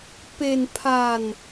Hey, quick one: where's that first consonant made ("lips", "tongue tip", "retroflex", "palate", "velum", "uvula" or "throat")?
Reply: lips